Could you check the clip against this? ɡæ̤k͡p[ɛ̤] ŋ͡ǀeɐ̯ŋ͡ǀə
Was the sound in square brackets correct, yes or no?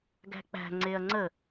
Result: no